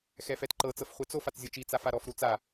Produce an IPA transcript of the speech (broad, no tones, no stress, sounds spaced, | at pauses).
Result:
x ɛ f ɛ t ǃ ɤ t͡s ɤ f χʷ ɛ t͡s o f a t͡s zʲ o t͡ʃ i t͡s a f a ɾ ɔ f ɾ u t͡s a